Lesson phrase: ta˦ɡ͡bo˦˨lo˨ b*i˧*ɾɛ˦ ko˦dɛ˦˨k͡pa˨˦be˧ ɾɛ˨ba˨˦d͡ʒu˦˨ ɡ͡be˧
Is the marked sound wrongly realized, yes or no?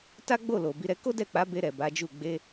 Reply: no